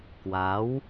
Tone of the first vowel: rising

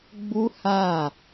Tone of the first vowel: high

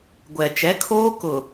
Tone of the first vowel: low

